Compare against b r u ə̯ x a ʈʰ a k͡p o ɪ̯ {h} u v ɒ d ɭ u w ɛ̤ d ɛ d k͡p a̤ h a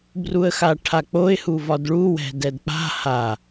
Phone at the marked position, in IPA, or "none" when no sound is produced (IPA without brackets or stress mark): h